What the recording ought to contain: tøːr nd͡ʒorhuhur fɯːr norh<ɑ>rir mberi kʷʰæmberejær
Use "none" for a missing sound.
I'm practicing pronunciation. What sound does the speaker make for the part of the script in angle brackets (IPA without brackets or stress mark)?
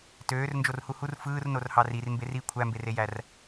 ɑ